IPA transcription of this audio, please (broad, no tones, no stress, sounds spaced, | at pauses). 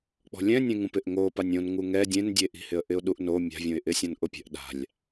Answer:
k͡p ɔ̤ lʲ ɛ̃ nʲ ẽ ŋ ũ p ɪ ʔ ŋ o p a nʲ õ n ŋ u ŋ ɛ dʲ ẽ n dʲ e ʔ i̤ h ɪ ə̯ ʔ ɪ ʊ̯ ɗ u ʔ n o mʲ a̤ vʲ õ ɪ̯ ʔ ɪ sʲ ɔ̃ n ʔ ʊ pʲ ɛ̤ ʔ ɗ a̤ lʲ